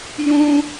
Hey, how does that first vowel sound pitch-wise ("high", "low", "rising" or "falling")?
high